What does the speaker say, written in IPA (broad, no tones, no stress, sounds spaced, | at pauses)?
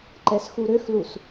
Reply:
ǃ ɛ s x u ɾ ø x l u s